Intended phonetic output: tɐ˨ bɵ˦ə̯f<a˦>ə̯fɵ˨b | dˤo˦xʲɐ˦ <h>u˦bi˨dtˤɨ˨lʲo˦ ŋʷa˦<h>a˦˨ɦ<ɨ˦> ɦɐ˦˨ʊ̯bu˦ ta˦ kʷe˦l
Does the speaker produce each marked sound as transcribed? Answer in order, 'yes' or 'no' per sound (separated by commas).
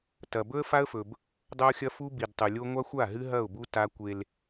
yes, no, no, yes